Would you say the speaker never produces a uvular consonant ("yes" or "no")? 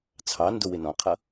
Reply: no